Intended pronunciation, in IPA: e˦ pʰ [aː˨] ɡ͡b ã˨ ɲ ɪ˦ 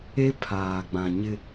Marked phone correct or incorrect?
correct